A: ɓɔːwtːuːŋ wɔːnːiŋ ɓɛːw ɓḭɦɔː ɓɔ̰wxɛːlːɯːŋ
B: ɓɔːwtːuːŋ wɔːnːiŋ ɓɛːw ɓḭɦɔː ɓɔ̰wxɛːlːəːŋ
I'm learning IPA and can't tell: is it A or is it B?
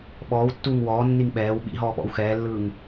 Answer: A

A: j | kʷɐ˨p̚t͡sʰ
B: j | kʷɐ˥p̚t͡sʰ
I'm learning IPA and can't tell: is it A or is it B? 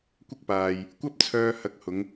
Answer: B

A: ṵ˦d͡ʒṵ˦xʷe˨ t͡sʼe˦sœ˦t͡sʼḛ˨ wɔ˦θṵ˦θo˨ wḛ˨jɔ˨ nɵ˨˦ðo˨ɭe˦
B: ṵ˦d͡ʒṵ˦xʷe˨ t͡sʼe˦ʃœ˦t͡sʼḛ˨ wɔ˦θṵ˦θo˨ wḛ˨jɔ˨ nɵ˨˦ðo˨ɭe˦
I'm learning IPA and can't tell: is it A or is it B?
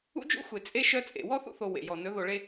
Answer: B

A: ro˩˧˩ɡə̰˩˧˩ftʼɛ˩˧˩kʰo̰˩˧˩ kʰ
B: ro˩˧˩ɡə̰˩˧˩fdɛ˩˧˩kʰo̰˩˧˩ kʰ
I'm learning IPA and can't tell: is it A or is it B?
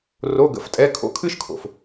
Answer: A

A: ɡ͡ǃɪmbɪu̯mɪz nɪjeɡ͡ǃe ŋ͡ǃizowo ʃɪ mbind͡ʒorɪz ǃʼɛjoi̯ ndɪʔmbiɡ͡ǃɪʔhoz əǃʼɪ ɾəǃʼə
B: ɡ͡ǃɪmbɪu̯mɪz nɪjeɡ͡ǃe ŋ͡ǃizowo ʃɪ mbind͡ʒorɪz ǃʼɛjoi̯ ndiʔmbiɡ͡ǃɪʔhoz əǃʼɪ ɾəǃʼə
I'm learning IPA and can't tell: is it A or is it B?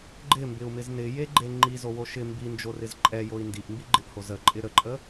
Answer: B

